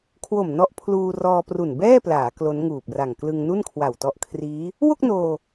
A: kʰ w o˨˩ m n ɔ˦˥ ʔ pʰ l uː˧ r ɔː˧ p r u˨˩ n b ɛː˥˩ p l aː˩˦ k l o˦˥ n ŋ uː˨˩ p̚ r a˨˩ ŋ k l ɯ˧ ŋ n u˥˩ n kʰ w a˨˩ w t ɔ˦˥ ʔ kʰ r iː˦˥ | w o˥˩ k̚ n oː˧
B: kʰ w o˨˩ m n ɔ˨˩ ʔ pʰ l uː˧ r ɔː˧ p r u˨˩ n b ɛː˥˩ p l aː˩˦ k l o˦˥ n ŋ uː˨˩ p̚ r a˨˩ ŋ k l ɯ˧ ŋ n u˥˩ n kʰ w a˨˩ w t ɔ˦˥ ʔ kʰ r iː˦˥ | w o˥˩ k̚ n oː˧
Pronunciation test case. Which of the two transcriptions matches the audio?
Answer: A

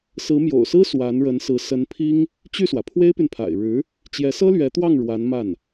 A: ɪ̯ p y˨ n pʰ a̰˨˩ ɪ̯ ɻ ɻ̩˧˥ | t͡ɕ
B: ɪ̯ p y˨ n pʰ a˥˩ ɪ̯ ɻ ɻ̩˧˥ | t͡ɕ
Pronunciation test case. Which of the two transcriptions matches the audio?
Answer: A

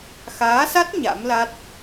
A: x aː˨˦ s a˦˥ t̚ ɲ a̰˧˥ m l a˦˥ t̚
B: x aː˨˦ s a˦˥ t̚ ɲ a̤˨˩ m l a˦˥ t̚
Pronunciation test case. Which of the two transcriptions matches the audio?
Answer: A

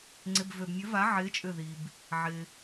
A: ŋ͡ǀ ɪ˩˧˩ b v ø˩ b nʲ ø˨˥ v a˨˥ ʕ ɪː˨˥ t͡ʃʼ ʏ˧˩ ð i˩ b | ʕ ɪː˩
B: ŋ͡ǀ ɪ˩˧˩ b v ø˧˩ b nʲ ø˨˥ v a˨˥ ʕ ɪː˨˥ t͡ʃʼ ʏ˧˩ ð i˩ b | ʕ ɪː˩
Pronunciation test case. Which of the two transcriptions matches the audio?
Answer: A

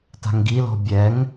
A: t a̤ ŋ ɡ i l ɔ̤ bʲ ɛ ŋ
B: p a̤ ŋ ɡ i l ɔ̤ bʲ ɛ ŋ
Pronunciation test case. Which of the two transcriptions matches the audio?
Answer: A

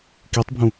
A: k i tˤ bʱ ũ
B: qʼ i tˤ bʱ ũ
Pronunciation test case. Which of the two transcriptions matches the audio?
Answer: A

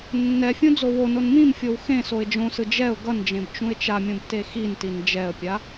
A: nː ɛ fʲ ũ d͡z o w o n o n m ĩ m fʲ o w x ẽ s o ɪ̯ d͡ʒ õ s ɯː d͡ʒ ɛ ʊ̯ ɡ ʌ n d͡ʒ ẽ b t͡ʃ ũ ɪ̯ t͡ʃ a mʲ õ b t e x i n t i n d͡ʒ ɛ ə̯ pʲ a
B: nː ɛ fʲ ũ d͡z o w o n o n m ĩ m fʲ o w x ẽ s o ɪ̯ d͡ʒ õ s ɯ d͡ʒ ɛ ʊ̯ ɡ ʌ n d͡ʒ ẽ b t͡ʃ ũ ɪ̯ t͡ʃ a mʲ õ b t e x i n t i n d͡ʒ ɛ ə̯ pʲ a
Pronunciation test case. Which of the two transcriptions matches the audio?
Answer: B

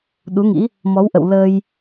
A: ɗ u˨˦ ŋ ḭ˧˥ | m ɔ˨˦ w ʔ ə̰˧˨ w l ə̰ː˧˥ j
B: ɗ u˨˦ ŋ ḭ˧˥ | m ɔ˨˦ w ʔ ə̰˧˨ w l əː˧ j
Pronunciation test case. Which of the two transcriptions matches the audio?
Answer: B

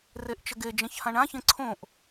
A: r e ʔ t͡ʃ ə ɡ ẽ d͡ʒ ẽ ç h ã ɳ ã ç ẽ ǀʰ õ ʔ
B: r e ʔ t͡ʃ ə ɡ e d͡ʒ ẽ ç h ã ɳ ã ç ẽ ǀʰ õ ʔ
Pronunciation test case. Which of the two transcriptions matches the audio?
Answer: B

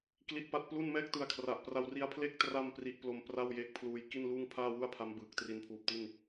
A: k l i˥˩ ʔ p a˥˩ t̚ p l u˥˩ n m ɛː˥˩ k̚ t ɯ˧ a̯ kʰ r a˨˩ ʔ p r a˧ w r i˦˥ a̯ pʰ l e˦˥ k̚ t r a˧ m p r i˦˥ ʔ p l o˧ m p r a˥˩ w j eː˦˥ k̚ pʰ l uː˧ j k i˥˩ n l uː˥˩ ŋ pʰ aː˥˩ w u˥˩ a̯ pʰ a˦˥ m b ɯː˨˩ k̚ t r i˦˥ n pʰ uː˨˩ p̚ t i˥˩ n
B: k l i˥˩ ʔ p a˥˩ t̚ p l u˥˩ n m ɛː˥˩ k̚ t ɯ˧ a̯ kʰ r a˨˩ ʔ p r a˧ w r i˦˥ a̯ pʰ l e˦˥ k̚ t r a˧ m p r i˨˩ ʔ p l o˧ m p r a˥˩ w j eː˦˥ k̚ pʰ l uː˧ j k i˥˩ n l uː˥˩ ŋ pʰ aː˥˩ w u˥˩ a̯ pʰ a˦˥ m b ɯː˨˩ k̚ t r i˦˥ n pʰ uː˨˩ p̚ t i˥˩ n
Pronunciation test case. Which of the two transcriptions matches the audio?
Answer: A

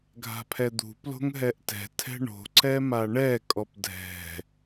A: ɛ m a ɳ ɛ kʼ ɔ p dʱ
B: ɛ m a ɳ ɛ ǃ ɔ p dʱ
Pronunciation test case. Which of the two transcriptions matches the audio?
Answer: A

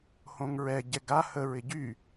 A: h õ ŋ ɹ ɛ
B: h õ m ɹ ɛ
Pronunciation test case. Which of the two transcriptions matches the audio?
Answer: A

